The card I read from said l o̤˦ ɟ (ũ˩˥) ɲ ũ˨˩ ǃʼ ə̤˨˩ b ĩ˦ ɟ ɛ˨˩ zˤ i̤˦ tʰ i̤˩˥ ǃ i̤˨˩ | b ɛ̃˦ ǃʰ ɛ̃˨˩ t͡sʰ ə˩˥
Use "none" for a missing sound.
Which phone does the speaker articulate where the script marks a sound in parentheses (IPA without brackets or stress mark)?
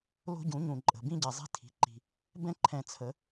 ũ˩˥